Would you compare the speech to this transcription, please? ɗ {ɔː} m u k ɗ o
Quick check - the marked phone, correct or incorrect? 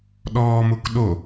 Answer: correct